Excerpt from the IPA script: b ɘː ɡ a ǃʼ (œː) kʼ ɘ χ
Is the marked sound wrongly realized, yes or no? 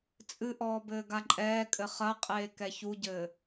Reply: yes